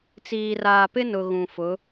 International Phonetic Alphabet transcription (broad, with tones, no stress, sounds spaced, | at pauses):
t͡s iː˨ r aː˨ p ɪ˦ n ʊ˨ ɣ ũ˨ f ʊ˨˦